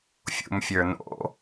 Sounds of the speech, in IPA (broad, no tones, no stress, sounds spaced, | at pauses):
fʲ ṵ m fʲ ə˞ n o̰